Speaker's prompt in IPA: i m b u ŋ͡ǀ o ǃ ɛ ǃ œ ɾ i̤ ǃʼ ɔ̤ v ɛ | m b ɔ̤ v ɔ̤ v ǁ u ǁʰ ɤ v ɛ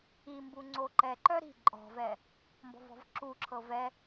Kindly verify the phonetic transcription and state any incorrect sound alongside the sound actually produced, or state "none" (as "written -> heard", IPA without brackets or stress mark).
none